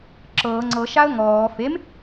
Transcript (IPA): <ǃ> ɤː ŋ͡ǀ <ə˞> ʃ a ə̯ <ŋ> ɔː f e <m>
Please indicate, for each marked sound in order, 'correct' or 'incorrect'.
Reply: incorrect: ǁ, incorrect: ɤ, correct, correct

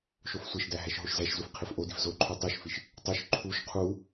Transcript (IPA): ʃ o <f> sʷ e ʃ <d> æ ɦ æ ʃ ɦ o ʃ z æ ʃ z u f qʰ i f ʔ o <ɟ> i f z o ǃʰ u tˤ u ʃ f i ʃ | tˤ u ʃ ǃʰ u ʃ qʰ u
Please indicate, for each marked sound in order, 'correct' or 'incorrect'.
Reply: correct, correct, incorrect: d

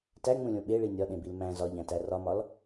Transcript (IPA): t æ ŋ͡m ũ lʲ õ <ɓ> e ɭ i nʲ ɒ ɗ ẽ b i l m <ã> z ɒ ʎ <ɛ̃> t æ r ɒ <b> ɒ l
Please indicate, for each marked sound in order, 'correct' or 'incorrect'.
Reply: correct, incorrect: æ̃, incorrect: æ̃, incorrect: m

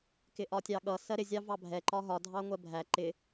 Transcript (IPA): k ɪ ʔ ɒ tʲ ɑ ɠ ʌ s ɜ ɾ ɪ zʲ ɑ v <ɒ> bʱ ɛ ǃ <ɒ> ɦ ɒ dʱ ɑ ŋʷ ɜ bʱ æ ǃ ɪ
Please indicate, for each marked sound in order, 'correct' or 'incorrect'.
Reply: incorrect: ɑ, correct

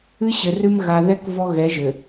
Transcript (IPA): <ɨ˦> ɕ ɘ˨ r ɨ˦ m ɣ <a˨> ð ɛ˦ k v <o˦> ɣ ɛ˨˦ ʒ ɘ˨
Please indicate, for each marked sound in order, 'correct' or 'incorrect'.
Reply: correct, correct, incorrect: ɔ˦

